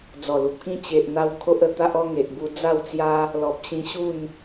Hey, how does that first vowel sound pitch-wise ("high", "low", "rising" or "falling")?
low